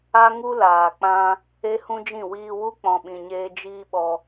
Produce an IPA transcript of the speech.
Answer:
a˦ŋu˦ laː˨k͡pã˧ | e˦hũ˦d͡ʒĩ˦˨ wiː˧wu˦ k͡pɔ̃˧ɓĩ˧ɲeː˦ d͡ʒiː˦ɓɔ˧

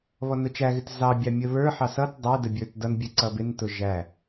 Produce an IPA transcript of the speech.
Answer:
βɔnʊt͡ʃæɣɪt zɑbʲɑ mʲəβə˞ħɑ sʌt dˤɛdə bʲə˞tdʌnbʲɛ ǀʌbɪntʊ ʒæ

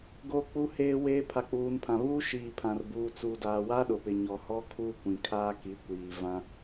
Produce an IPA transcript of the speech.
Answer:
ɡo˦k͡pu˦heː˦weː˦ pʰa˨k͡puː˨npʰã˨ βuː˦ʃiː˨pʰã˨r buː˨t͡su˨daː˨ wa˦ɗʊ˨pɪ˨ ɲɔ˨ hɔ˦kʰu˦kʷĩ˨ kʰaː˦ki˨˦kʷiː˨ vã˦

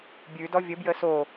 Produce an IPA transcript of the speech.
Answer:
bʲʉdɔ vʲə bjəso

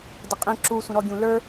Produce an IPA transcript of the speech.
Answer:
dəqʼĩ ǁusʷə̃ɾɔ ɡʲũlə˞

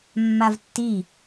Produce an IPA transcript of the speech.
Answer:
mːavtːi

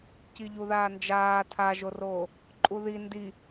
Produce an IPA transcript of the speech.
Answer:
ciʎuðaːnd͡ʒaː tʰaʒoroː | ǃʼuði ndi

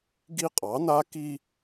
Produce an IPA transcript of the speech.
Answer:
ɡi˦qʼɑ˨˦na˦ki˦

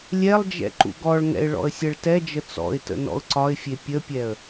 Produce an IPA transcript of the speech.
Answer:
lʲɛlˠd͡ʒɛ̰ ǃṵɡɔɭŋɛ̰ɪ̯ ɭɔ̰ə̯sʲɛɭtɛd͡ʒə t͡sɔ̰ɪ̯tə̰ nɔ̰ʊ̯ǀɒɪ̯fʲe pʲəpʲɛə̯

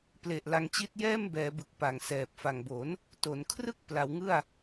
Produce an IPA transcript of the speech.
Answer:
ple˨˩ʔ la˧ŋt͡ɕi˦˥t̚jɛː˥˩m bɛː˩˦bɯ˨˩k̚ pa˨˩ŋsɛː˨˩p̚fa˨˩ŋbo˩˦n | to˩˦nkʰrɯ˥˩k̚ pla˩˦wŋɯ˥˩a̯

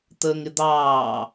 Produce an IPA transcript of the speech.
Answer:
t̪əːŋɪd̪ɑː

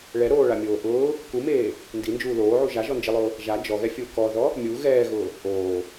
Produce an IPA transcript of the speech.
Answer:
ɭɛɾoːɭamʲoː ʔʊː | kumeː | ndind͡ʒuː loːʕu ʒaʒɔnd͡ʒilˠʊː | ʒa d͡ʒɔɣɛfʲʊː kɔðɔ | mʲu ɣɛːɣʊː | ʔoː

